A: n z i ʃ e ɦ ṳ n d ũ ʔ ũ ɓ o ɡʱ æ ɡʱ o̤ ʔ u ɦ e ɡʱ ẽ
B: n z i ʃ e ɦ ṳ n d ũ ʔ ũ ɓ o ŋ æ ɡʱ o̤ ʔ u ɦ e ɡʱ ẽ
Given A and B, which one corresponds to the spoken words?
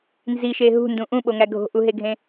B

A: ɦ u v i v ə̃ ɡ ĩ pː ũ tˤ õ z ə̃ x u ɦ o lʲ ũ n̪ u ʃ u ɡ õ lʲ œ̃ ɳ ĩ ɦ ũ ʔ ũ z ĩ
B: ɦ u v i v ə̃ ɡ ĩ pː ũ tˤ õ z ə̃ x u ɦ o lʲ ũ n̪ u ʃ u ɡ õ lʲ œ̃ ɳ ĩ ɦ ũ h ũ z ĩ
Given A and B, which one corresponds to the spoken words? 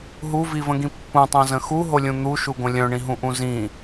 A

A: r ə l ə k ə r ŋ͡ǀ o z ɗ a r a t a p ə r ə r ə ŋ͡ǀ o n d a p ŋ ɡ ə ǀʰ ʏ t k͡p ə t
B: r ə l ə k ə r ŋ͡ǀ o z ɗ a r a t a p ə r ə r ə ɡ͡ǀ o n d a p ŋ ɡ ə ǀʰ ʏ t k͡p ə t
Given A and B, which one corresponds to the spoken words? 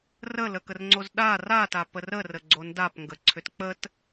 B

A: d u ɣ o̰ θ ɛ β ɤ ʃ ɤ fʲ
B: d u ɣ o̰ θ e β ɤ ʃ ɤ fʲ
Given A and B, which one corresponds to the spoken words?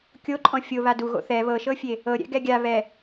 A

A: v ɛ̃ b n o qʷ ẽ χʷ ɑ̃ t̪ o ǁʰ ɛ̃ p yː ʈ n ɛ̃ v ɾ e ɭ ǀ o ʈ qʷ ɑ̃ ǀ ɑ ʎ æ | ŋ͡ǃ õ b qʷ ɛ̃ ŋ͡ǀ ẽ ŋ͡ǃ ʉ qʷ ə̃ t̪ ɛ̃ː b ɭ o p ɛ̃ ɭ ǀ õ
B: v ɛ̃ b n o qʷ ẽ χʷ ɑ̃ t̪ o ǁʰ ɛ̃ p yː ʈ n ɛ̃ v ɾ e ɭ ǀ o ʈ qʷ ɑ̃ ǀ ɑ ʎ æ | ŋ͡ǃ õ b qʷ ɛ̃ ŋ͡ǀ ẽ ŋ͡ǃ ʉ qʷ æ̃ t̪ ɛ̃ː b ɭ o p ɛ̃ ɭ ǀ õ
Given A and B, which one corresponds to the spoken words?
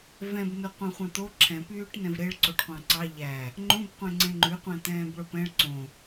B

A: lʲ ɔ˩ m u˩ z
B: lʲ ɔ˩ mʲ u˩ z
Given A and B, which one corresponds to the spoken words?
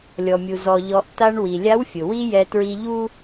B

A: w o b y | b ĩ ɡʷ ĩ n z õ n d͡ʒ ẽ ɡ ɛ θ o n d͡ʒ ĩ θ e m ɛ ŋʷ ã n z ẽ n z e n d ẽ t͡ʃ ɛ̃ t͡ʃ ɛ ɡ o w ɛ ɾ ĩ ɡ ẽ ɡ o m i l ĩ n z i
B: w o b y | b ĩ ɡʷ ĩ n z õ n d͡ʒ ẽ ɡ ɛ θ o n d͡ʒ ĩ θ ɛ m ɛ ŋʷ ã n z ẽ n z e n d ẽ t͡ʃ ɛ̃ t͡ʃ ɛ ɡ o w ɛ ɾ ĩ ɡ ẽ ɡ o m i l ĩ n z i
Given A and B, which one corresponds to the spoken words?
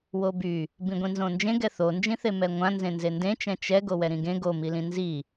A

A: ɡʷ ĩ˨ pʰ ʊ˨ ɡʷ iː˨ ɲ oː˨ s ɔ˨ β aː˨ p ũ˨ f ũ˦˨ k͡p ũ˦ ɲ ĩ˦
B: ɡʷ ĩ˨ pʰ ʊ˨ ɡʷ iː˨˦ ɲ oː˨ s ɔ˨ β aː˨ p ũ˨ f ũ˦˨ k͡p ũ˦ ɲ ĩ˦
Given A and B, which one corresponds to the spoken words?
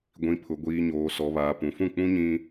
A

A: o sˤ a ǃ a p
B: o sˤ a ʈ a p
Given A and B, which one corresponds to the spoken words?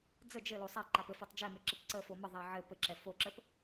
A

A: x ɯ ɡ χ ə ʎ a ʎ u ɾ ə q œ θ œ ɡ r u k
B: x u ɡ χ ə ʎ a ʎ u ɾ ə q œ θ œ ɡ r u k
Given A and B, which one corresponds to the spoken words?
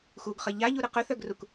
B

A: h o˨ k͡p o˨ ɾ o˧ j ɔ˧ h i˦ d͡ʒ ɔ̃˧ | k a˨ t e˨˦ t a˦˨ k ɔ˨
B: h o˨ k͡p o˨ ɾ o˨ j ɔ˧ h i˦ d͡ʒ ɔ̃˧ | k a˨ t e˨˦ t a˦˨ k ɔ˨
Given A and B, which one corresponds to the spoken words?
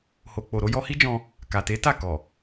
A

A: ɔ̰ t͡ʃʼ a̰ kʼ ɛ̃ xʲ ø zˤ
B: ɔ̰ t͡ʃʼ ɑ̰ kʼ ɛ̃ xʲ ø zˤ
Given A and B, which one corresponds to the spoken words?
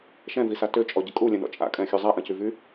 A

